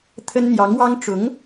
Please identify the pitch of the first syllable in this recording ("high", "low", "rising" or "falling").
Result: high